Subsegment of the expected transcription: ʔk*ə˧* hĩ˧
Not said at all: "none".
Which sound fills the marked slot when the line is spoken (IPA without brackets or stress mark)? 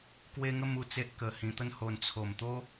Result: ə˧